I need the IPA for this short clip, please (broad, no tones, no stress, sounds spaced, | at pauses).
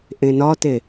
ʔ ẽ n ɒ t e